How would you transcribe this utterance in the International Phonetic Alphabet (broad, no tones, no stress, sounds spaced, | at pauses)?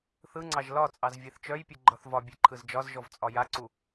θ ɯ ŋ͡ǀ ɑ ʒ l ɒ t͡sʼ ɑ z vʲ e θ t͡ʃ œ j pʲ ɯ ɡ͡ǃ ɒ θ v ɒ bʲ e ǃʰ ɯ z d͡ʒ ɒ z ʒ ɔ v t͡sʼ ɒ j a ǀ u